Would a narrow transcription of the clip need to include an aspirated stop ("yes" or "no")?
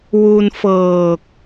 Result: no